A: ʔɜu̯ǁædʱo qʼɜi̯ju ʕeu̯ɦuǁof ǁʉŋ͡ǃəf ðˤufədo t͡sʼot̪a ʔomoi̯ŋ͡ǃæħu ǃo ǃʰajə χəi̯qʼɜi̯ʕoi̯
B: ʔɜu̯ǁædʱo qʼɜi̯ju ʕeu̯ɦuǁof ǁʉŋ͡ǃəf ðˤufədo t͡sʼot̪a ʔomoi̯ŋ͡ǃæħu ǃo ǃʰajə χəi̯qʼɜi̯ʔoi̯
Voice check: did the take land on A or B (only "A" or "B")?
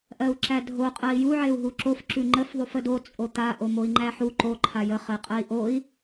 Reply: B